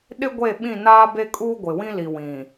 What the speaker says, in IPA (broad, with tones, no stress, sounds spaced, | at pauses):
ɗ ɪ˦ ɡʷ e˦˨ ɓ ĩ˦˨ n aː˦ b e˦ kʼ uː˦ ɡʷ ɪ˨ w ĩ˦ l i˨ w ĩ˨